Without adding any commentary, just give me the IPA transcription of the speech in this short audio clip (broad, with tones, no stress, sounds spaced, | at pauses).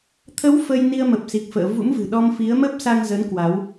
t̪ʰ ə˨˦ w f ə˧ j n i˧ ə̯ m ə˨˩ p̚ s i˨˩ k̚ f ə̰ː˧˨ v ṵ˧˥ m v ɨ̤˨˩ ɗ ɔ˧ m f i˨˦ ə̯ m ə˦˥ p̚ s a˧ ŋ z ə˨˦ n k w a˨˦ w